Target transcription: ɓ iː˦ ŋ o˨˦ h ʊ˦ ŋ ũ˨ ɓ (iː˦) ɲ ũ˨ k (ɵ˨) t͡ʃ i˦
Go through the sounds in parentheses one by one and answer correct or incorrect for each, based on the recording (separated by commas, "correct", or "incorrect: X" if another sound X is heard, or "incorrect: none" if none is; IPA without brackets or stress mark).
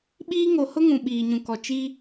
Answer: incorrect: iː˨, incorrect: ɔ˨